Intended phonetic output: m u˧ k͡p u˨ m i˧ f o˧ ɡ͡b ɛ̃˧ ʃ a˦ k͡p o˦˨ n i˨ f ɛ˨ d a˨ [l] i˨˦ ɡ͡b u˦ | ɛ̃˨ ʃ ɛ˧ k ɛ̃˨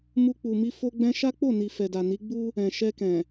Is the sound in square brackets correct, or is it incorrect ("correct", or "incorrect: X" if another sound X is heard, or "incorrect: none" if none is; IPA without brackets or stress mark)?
incorrect: n